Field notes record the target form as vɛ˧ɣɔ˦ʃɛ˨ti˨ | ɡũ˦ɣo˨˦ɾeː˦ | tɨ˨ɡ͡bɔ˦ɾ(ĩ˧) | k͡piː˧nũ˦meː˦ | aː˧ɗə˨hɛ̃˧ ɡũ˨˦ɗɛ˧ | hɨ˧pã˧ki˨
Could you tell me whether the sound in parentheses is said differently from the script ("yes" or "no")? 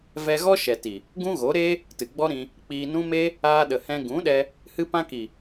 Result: no